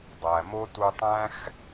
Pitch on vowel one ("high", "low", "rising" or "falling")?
low